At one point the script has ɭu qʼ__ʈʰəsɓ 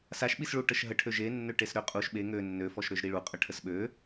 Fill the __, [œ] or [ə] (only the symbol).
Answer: ə